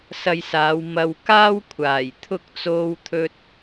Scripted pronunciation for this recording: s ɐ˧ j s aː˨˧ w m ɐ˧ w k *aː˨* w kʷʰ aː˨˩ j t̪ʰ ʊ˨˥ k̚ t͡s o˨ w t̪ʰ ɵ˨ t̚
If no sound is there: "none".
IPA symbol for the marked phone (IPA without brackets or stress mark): aː˥